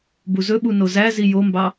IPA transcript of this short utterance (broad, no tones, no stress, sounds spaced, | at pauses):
b u z ɵ ɓ u n o z æ z i j o m b ɑ